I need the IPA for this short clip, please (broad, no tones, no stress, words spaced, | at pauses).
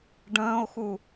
ɖə̃ːo̯xu